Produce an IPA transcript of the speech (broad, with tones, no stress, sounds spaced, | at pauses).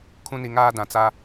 kʰ ũ˦ n i˨˦ ŋ aː˦ d ã˨ t͡s a˦